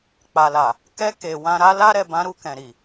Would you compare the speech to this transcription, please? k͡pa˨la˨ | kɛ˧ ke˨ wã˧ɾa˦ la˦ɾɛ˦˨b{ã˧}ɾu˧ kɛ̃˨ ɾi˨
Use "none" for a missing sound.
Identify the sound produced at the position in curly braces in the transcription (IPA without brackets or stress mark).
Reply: ã˧